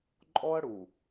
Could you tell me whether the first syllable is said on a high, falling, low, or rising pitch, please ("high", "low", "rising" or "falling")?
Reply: high